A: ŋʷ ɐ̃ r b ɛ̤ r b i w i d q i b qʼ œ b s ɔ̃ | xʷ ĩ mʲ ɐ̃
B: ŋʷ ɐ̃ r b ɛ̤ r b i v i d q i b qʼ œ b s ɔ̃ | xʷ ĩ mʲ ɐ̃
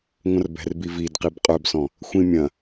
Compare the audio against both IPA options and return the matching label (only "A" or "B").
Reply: B